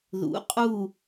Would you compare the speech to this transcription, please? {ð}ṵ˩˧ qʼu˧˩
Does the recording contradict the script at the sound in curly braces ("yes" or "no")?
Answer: no